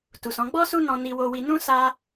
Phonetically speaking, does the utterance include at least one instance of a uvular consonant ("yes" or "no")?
no